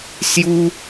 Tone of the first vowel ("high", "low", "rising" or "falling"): high